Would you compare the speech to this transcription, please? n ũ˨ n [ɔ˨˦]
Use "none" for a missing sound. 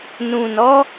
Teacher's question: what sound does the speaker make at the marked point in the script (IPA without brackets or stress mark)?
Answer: ɔ˨˦